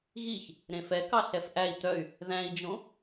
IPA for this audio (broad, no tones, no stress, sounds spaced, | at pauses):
ɣ i ç | ɾ ẽ f ɛ k ɑ ɬ ɛ f ʔ æ i̯ t̪ œ y̯ | ð æ̃ i̯ d͡ʒ õ